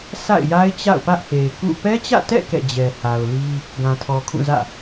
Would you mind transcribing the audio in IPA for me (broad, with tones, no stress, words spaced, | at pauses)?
sʰa̰˦˨ɪ̯ja˦ɪ̯ t͡ɕa̰˦˨ʊ̯pä˦ʔ he˨ɪ̯kṵ˦˨ pɛ˦t͡ɕä̰˦˨tɛ̰˦˨ kɛ̰˦˨d͡ʑɛ˨ha˨ʊ̯li˦ | ɡã˨tʰɔ˨kʰũ˦˨zä̰˦˨